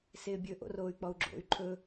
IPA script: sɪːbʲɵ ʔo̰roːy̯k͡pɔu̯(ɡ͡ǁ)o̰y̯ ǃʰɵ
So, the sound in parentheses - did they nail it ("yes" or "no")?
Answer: yes